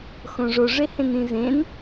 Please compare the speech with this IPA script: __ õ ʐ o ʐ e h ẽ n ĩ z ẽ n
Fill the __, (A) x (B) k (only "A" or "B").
A